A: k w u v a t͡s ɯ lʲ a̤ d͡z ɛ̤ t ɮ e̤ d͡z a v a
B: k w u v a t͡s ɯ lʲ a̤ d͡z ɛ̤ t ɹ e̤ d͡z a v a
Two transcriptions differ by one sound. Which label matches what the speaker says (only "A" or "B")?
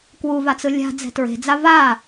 B